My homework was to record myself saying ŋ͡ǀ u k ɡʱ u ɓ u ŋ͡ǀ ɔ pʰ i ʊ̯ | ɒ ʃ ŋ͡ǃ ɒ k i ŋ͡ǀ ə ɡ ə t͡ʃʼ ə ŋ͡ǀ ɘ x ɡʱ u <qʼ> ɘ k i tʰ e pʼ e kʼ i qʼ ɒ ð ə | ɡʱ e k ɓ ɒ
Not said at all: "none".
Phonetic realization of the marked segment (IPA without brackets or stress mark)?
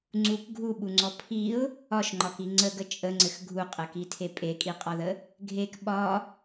qʼ